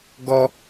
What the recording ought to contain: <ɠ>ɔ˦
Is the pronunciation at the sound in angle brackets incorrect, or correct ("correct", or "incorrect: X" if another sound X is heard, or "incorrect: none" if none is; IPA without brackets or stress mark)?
incorrect: ɡ